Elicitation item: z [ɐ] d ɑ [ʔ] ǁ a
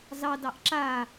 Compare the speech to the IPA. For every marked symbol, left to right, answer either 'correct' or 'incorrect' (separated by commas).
incorrect, correct